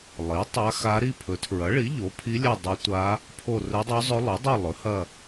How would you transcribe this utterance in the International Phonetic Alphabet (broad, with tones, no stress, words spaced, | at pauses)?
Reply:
lˠi˩˥ tˤa˧˥xa˧˥ ɾi˦˨pʰɵ˩˥tʰɹɐ˩˥ɭi˩˥ ʎo˩˥pʰi˧˥lʲɐ˦˨ dˤɵ˧˥tʷa˧˥ | pʰo˦˨rɵ˧˥dˤo˧˥zˤɵ˧˥ lˠɵ˩˥dˤɐ˦˨ lˠɵ˩˥hɐ˦˨